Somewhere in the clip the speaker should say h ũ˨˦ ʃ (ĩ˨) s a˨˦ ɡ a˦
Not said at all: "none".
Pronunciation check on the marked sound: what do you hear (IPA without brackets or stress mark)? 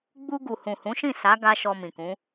ĩ˦˨